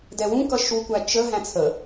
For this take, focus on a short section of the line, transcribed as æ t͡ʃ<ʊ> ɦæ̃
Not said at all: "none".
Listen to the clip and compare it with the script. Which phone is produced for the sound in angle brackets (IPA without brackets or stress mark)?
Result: ə